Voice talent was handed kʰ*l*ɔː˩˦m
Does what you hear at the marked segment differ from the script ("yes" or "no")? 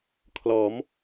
no